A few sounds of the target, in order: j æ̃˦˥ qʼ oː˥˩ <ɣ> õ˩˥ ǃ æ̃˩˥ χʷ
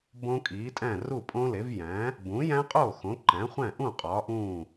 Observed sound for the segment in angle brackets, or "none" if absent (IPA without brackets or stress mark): x